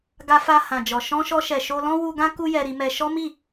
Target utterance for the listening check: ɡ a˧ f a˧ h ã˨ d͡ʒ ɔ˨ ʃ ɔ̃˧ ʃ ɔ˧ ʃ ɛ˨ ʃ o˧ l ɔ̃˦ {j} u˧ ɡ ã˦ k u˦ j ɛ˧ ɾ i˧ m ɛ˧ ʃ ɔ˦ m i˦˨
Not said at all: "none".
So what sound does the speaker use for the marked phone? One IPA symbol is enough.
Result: w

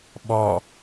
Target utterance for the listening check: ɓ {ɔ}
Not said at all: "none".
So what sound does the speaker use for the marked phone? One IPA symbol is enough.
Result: ɔ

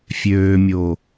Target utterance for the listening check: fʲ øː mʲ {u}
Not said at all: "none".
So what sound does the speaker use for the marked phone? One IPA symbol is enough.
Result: o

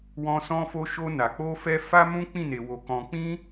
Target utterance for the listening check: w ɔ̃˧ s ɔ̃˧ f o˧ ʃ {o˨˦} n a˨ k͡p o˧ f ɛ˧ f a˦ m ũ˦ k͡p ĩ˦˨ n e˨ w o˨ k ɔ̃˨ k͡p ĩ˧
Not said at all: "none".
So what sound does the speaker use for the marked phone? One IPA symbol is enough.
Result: o˧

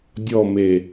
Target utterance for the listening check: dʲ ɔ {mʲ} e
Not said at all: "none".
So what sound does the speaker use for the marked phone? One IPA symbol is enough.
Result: m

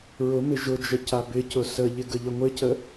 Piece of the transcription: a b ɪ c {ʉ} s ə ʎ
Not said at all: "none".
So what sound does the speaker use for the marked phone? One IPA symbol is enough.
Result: ʊ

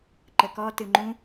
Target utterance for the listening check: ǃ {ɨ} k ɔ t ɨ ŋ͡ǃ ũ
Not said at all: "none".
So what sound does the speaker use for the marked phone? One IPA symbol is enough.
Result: ə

